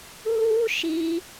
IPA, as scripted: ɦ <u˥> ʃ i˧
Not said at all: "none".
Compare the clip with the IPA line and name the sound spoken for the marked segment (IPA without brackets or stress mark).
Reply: u˥